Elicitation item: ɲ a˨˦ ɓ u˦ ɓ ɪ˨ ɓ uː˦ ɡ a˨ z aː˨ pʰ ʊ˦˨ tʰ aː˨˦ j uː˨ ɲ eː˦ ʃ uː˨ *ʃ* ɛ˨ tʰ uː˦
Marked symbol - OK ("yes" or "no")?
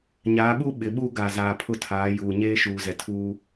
no